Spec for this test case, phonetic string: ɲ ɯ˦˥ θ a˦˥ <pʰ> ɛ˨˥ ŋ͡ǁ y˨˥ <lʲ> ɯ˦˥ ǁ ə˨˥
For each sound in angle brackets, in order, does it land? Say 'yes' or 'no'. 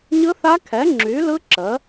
no, no

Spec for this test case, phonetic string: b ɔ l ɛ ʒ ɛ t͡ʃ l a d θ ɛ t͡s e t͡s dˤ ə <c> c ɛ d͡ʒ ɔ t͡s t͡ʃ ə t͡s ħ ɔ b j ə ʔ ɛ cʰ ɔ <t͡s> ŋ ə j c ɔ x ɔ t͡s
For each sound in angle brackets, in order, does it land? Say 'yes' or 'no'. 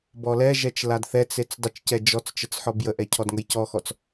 no, no

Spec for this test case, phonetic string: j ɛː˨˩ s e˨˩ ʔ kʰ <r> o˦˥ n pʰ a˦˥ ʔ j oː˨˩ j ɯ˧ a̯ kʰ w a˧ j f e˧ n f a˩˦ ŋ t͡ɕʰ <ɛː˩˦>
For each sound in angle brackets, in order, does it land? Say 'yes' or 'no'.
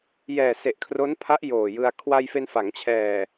yes, no

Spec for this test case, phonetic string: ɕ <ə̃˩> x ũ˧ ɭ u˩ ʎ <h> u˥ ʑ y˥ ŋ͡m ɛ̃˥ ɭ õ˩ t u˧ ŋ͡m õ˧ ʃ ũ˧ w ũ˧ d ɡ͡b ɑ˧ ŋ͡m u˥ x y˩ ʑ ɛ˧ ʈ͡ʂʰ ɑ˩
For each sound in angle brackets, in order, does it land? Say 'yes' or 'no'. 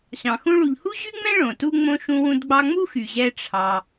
no, yes

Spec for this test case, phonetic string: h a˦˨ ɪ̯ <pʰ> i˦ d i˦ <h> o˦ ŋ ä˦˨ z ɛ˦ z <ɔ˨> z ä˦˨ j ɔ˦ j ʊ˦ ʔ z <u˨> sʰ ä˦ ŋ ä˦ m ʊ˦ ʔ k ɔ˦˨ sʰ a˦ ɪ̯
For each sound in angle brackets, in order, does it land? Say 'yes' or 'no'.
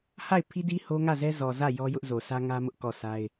yes, yes, yes, no

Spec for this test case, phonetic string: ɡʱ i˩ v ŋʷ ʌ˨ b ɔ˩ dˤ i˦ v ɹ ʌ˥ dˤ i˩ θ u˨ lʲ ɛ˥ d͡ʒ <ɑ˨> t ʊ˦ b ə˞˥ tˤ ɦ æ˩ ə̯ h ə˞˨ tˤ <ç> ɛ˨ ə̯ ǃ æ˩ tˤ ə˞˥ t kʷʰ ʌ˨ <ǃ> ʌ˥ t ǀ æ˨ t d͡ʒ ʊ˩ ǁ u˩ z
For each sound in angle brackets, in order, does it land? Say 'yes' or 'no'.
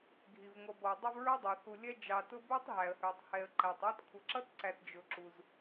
yes, no, no

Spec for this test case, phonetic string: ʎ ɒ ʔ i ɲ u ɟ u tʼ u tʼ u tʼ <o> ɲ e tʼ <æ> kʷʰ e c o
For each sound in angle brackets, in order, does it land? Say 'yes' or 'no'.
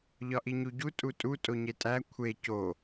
yes, yes

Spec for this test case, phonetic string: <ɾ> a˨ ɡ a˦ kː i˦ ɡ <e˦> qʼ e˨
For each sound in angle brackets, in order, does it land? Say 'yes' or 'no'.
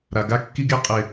yes, yes

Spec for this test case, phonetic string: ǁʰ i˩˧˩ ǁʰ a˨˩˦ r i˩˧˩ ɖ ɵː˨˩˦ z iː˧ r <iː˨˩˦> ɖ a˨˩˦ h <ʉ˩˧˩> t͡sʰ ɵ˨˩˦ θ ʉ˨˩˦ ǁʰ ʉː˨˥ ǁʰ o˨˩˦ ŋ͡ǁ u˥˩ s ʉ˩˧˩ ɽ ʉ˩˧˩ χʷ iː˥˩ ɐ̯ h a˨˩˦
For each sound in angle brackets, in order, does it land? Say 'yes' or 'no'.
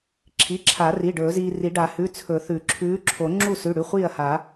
no, yes

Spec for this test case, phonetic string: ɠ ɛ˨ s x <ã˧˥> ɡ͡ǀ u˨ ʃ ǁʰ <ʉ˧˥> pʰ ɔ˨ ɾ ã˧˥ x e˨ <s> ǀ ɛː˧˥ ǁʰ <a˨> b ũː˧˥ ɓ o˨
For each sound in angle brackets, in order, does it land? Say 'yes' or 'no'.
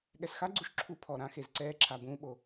no, no, no, yes

